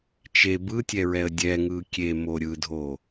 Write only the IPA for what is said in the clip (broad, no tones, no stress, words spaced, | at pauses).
t͡ʃe bɯtʲɛɹɛə̯ dʲɛŋɯ kʲemo ɾʲɯdʱo